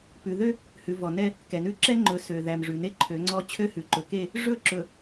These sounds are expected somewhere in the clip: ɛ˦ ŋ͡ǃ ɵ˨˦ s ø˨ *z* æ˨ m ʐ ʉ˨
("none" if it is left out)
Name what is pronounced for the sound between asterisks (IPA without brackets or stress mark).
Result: ð